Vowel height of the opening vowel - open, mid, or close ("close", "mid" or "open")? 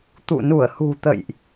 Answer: close